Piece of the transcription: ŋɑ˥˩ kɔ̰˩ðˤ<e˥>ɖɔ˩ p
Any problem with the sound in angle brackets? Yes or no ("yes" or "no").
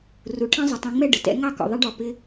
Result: yes